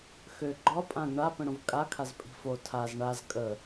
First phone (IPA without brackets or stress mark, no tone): x